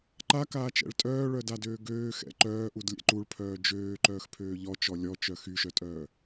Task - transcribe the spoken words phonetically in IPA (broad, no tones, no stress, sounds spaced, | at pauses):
ǃ a k aː t͡ʃ ɛ̰ ɭ tʼ œː ɭ œ d a d øː ɡ øː x ɛ̰ ǃ œː ʔ u d lʲ ɛ̰ ǃ u ɭ pʰ œː d͡ʒ øː ǃ œː x pʰ øː ʎ ɔ t͡ʃ ɔ lʲ ɔ t͡ʃ œ x y ʃ œ tʼ œː